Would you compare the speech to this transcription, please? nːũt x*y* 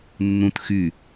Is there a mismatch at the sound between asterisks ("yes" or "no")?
no